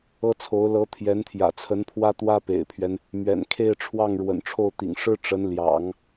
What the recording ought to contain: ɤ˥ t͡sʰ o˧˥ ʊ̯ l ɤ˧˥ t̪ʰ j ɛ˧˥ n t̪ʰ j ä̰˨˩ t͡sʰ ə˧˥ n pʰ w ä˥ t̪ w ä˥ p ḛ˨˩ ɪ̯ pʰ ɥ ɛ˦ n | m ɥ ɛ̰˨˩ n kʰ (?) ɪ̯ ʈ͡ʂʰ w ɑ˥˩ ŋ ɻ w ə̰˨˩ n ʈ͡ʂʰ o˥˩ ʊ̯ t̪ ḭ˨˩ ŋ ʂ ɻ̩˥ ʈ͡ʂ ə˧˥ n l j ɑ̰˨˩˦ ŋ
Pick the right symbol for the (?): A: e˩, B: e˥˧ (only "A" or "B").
B